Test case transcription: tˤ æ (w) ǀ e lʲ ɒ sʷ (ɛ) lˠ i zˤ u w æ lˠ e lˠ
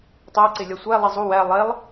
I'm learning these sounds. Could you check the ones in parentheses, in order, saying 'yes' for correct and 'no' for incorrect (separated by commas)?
no, no